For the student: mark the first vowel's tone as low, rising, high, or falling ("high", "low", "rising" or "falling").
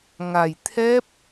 low